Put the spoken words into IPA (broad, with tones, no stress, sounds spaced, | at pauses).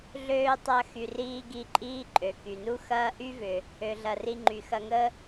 ɮ øː˧ tˤ ɐ˧ x y˩ r iː˧ ɡ i˧ ǃʼ iː˥ ǃʼ ø˩ k y˩ n u˥ x ɐː˥ ʔ y˥ v ʏ˩ | ø˩ ɮ ɐ˩ r i˧ ŋ͡ǃ y˩ x ɐ˧ ŋ ə˥